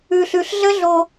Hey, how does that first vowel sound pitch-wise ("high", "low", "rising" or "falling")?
low